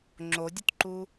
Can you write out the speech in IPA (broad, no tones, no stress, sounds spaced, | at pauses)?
ŋ͡ǁ o dʲ ʊ t ǃ u